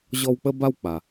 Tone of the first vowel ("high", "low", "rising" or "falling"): high